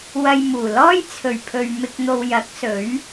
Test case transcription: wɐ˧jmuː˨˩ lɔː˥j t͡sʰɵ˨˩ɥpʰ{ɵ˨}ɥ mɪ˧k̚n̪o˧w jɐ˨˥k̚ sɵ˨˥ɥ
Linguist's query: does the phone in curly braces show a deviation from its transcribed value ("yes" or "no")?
no